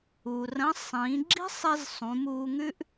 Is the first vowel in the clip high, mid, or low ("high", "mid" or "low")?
high